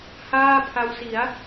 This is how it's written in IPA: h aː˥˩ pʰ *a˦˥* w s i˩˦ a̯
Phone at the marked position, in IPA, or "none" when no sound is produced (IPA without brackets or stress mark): a˧